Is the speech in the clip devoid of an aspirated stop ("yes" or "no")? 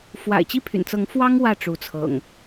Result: no